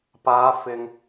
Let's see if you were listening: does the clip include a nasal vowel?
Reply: no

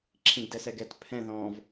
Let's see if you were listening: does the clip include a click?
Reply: yes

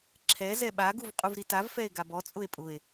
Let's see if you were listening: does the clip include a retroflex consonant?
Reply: no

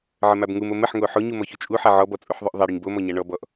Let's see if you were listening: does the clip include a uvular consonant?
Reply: no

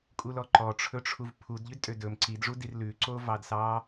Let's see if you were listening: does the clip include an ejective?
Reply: yes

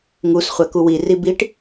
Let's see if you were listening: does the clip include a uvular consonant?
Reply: yes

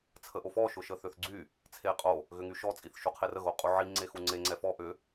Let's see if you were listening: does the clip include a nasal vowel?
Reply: no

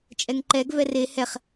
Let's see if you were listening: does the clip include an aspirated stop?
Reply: no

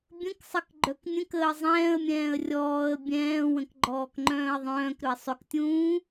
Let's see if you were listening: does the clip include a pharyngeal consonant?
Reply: no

